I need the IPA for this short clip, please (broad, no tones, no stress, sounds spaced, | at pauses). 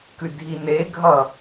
k ʉ dʱ i n e ɡʱ ʌ